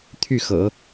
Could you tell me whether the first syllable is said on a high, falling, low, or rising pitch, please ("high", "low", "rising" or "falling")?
falling